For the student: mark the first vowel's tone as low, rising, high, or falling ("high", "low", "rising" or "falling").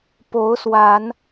rising